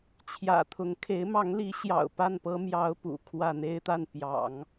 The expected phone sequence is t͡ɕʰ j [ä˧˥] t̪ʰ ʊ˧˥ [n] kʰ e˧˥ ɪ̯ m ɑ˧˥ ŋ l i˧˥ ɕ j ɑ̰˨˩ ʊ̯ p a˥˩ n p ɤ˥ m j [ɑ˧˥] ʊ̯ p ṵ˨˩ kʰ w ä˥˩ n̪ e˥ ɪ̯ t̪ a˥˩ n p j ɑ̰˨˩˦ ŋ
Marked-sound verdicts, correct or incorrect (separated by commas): incorrect, incorrect, incorrect